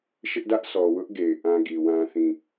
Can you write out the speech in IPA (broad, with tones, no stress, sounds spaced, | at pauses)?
ʃ ɪ˦ ʔ d ä˦ ʔ sʰ ɔ˨ w ʊ˦ ʔ ɡ e˨ ɪ̯ ʔ ã˦ ɡ i˨ w ã˦ θ ĩ˦˨